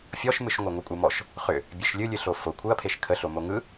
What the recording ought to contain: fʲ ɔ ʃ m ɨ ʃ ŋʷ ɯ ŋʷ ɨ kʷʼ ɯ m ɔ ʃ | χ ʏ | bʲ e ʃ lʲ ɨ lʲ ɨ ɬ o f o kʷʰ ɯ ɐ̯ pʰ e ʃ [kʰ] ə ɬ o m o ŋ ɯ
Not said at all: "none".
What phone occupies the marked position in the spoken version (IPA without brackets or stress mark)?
kʰ